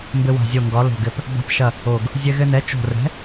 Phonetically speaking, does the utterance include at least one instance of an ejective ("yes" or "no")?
no